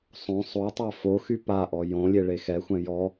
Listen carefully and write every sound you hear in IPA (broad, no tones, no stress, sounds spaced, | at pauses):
sˤ õ sˤ o tˤ a f o x y p a ʔ ɔ j õ lʲ e ɭ e x ɛ xʷ ɛ̃ j ɔ